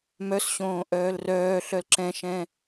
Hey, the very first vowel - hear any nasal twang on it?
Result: no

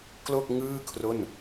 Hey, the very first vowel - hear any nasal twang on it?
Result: no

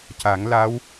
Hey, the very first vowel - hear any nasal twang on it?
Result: no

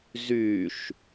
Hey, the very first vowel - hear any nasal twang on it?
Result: no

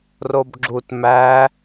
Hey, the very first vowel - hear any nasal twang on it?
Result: no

